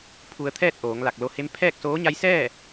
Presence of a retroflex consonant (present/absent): absent